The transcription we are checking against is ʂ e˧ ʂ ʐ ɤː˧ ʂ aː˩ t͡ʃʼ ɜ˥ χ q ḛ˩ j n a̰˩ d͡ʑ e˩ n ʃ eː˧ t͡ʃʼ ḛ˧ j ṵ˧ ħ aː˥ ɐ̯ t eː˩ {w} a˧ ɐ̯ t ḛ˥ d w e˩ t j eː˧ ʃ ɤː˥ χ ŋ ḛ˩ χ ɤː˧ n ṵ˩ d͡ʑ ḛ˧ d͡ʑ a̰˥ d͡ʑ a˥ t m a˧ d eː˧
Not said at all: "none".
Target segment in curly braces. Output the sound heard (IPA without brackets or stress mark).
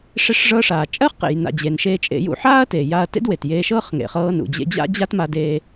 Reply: j